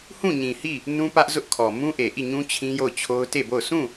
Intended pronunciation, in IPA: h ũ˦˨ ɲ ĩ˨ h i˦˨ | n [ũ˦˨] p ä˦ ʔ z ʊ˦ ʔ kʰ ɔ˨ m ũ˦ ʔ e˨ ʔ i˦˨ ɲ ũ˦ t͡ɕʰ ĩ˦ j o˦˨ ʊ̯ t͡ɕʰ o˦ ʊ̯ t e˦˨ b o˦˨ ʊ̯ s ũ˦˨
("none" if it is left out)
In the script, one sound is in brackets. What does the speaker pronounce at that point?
ũ˦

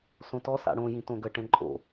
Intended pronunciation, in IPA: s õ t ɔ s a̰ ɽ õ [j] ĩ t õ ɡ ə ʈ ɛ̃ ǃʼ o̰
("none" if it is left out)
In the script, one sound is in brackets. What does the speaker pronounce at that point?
j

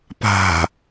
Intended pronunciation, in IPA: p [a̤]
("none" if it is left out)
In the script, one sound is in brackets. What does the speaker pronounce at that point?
a̤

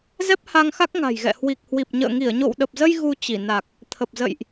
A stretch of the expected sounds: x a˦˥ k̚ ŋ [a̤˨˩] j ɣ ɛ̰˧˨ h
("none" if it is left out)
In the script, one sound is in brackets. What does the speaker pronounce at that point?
a̤˨˩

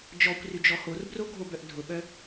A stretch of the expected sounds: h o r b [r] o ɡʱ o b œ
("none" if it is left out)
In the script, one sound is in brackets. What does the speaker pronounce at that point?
r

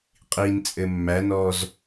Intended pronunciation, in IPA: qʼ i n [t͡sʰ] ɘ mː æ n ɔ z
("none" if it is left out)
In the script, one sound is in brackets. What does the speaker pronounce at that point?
t͡sʼ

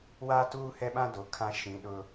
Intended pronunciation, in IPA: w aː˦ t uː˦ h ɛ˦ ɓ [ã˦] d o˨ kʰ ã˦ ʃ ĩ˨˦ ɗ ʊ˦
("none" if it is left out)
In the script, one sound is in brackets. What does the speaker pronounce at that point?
ã˦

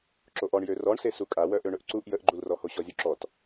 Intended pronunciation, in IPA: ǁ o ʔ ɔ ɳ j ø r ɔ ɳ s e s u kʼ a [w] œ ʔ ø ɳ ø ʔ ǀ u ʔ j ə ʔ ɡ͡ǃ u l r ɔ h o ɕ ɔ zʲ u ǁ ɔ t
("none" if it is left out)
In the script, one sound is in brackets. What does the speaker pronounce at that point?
w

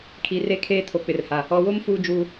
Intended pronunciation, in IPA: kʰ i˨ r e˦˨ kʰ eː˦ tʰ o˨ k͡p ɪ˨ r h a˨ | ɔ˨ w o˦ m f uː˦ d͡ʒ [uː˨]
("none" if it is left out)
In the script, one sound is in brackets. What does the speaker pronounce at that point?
uː˨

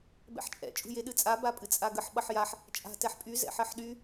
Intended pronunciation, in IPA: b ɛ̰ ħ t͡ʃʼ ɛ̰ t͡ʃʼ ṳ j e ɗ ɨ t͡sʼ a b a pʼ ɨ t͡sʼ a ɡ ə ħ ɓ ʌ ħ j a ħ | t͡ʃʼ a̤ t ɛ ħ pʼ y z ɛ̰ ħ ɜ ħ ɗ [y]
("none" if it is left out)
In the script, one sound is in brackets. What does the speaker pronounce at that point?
y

